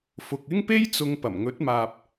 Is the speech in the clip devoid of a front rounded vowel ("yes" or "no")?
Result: yes